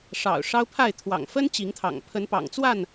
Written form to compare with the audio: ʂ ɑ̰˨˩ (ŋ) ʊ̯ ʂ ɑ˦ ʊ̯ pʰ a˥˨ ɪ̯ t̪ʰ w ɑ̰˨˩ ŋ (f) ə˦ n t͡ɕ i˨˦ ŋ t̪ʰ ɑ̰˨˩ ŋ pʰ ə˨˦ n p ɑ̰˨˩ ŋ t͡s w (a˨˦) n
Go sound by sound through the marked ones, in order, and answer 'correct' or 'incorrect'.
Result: incorrect: none, correct, incorrect: a˥˨

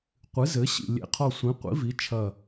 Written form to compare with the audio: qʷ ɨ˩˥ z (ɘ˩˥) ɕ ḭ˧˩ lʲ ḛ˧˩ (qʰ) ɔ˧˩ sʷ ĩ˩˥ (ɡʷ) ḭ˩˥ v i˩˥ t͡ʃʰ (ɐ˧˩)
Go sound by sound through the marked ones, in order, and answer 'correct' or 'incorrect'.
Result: correct, correct, incorrect: qʷ, correct

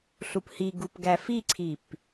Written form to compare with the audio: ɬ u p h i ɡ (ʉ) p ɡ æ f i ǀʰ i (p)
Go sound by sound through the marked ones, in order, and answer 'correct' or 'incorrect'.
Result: incorrect: u, correct

